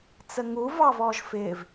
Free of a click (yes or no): yes